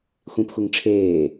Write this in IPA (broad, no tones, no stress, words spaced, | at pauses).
xʷĩpxʷiŋ ʈ͡ʂʰeː